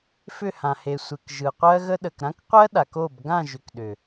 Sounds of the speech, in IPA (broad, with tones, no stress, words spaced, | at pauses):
fʏ˦˨hã˨he˨sʷe˨k ʒɯ˨qʷɜ˦ɣə˦ ɗə˨kɾã˦kqʷɜ˦ ɗa˨ko˦˨b ɡã˦˨ʒʏ˨k ɗʏ˨